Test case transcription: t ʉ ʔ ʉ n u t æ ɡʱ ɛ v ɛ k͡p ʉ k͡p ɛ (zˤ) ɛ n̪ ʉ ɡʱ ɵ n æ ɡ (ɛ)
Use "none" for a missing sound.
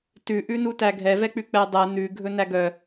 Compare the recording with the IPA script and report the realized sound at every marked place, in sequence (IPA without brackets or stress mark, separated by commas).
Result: dˤ, œ